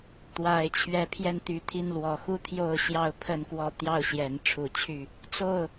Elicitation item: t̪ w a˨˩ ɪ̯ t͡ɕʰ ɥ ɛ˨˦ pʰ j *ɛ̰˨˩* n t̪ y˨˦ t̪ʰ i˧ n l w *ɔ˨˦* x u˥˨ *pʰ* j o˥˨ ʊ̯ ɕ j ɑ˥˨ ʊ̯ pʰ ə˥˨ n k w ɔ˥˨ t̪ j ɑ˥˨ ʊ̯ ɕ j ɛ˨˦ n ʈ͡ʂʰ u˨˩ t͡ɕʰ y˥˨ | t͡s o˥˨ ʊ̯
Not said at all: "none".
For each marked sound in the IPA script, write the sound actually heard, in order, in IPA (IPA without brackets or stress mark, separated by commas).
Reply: ɛ˧, ɔ˨˩, t̪ʰ